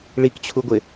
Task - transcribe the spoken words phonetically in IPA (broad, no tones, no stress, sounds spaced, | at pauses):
ɭ i k t͡ɕʰ u ɡʷ ɪ